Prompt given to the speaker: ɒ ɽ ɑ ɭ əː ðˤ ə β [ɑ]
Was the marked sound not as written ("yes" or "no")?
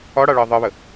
yes